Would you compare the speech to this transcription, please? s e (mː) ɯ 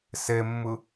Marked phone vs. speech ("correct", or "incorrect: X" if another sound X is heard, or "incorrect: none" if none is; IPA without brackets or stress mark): correct